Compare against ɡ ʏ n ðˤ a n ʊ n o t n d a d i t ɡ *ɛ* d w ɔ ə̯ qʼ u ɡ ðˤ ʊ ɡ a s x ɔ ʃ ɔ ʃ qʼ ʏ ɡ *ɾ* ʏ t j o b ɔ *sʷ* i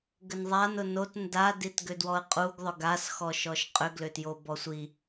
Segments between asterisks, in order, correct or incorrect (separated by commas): incorrect, incorrect, correct